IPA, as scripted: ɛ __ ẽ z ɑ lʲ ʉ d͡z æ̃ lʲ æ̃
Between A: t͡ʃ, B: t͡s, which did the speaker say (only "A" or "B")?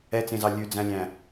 B